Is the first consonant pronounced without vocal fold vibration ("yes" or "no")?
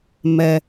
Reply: no